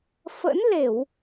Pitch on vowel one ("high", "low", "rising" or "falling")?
rising